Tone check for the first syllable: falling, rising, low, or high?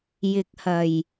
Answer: low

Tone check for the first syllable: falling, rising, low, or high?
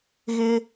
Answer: high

